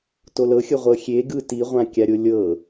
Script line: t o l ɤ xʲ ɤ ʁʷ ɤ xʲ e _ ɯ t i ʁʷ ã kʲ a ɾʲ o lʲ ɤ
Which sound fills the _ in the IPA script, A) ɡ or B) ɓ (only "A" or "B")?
A